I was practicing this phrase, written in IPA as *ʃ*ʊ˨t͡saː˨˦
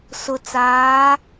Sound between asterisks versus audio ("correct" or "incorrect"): incorrect